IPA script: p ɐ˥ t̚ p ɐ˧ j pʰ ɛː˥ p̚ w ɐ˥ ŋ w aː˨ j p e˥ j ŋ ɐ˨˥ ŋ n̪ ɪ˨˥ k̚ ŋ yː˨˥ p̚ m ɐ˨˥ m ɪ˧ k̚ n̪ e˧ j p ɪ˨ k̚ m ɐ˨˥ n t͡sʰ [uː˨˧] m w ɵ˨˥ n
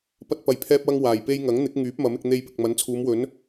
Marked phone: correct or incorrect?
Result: correct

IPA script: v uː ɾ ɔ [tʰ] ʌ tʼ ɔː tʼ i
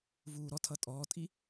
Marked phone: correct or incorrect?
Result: correct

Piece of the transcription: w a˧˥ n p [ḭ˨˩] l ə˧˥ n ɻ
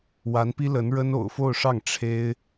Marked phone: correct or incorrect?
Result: incorrect: i˥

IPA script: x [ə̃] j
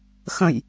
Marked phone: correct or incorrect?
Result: correct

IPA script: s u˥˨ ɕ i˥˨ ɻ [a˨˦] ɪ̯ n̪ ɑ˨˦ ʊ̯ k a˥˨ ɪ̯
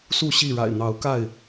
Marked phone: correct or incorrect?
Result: incorrect: a̰˨˩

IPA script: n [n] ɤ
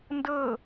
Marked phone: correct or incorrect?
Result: incorrect: d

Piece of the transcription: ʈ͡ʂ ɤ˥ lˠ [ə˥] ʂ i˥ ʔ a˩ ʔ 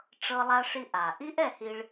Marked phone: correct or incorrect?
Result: incorrect: a˥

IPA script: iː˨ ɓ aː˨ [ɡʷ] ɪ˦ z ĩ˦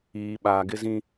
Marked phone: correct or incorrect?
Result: incorrect: ɡ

